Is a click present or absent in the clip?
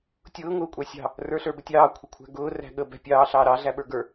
absent